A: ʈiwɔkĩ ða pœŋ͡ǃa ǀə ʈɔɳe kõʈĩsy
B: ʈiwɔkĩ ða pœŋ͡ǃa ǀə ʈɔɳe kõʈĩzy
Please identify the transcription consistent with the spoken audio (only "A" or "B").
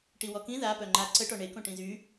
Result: B